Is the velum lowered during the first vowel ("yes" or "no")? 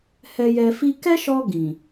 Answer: no